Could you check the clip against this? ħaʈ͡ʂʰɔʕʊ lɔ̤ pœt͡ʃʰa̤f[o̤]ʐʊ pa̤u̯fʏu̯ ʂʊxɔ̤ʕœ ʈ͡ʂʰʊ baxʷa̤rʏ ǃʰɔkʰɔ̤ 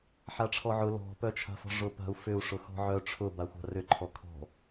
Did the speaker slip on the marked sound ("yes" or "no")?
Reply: yes